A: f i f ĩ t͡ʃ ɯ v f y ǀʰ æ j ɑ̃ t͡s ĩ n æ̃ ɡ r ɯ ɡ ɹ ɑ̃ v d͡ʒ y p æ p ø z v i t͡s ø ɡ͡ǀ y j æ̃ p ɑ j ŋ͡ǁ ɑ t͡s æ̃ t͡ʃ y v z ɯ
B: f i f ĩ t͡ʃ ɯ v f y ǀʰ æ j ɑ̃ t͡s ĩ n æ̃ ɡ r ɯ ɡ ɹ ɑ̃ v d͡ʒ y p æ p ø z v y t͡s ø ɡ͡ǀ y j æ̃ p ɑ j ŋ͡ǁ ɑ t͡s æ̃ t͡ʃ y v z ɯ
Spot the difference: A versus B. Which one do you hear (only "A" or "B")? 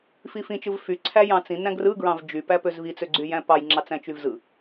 A